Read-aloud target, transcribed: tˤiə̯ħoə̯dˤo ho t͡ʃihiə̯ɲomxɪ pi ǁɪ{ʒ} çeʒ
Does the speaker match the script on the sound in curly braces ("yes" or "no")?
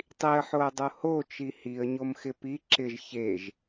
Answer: yes